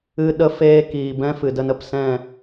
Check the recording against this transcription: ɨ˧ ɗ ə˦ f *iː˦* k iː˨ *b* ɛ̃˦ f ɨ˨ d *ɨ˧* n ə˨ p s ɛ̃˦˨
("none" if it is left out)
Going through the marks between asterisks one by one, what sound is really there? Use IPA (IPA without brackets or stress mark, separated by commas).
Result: eː˦, b, ə˧